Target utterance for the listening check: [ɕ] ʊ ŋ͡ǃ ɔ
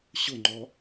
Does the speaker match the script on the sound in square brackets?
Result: yes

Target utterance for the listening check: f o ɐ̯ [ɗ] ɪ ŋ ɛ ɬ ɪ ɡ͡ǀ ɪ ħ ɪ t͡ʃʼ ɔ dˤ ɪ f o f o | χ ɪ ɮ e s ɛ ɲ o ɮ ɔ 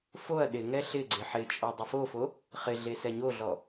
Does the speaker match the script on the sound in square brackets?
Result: yes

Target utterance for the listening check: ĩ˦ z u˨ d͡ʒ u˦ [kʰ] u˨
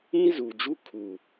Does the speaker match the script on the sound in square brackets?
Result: yes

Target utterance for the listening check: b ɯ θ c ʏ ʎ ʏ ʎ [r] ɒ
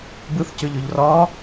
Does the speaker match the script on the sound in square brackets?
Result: yes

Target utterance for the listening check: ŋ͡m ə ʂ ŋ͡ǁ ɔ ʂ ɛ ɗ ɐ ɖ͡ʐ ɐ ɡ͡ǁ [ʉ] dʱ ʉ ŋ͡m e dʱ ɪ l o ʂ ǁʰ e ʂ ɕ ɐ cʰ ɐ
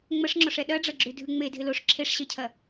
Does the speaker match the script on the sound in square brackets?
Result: yes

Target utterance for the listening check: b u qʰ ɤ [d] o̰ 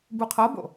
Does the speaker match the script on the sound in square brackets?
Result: no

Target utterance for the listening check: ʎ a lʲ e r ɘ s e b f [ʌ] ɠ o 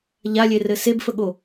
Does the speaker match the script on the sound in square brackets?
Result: no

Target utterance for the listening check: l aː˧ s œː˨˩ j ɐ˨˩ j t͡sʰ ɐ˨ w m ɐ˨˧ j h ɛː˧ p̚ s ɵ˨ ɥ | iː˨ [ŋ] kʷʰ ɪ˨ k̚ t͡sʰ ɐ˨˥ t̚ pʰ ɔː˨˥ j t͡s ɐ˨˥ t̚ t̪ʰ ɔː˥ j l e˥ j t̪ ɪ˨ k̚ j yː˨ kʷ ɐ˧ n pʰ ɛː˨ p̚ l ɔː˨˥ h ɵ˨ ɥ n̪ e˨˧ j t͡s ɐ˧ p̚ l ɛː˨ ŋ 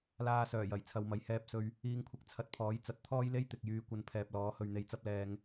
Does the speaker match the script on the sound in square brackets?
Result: yes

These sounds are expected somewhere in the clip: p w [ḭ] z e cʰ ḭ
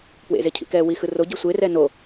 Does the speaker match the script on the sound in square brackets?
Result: no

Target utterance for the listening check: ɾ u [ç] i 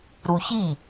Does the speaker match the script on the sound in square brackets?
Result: yes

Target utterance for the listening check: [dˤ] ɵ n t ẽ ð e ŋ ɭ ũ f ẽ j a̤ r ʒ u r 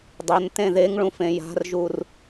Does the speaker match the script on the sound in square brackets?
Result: yes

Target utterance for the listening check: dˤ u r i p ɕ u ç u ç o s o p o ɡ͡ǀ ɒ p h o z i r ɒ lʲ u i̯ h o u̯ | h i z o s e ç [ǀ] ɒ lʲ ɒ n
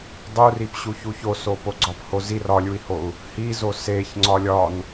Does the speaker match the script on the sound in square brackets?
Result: no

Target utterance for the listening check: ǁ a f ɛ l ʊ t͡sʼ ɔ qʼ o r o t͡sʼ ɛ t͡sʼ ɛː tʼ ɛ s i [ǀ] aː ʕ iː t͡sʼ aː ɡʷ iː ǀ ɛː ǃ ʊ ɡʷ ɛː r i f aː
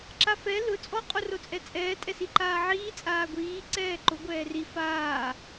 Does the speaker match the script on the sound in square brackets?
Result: no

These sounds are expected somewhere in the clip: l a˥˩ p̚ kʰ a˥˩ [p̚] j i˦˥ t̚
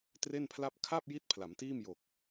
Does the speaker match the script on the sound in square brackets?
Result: yes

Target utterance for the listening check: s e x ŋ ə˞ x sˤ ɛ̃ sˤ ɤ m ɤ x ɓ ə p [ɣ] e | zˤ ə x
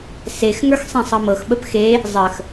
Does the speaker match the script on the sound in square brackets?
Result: no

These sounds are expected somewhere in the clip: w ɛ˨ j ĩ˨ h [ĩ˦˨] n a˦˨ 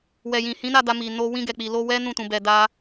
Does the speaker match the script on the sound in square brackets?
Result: no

